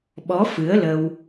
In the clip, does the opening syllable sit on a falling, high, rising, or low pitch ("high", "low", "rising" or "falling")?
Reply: rising